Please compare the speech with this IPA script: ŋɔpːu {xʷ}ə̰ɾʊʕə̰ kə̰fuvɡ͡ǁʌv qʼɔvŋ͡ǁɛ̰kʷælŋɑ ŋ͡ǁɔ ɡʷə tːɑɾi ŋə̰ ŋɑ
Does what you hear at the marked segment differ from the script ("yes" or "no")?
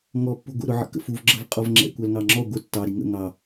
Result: yes